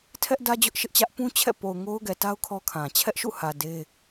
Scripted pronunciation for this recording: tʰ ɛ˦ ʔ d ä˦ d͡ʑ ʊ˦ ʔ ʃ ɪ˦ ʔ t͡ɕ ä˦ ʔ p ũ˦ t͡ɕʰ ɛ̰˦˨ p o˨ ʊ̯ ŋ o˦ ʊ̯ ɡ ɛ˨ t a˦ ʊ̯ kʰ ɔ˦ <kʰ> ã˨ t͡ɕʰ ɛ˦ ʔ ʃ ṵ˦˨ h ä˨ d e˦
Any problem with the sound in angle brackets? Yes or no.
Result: no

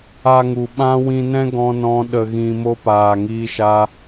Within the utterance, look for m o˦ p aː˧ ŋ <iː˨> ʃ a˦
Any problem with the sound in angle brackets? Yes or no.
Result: yes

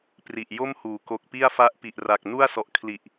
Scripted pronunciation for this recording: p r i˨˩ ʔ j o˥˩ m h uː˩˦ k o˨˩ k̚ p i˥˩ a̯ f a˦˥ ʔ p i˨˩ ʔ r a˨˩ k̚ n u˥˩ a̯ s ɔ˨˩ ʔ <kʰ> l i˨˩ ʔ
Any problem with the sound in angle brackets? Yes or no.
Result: no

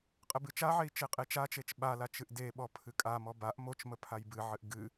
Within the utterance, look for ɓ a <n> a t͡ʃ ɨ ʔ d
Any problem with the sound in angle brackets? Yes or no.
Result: yes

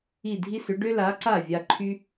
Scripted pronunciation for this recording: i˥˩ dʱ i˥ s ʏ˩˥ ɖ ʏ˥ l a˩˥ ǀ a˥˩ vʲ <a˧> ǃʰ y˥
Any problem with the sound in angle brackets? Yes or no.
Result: no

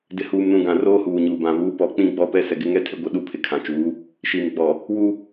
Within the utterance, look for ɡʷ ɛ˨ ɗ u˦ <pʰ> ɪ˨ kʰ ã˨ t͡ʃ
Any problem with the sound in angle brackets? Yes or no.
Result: no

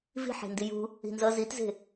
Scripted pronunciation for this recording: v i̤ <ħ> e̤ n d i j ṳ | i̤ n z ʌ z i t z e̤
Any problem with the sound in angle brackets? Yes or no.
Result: no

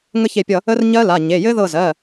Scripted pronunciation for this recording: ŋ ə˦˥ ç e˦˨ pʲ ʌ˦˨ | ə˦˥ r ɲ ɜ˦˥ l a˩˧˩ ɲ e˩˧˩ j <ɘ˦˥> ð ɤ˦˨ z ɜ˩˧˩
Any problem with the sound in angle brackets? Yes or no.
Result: no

